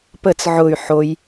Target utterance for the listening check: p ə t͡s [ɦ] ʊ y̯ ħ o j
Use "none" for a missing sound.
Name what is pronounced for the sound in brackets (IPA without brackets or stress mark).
ʕ